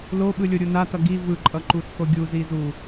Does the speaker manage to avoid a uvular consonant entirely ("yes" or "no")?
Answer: yes